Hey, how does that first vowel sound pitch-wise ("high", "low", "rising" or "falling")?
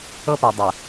high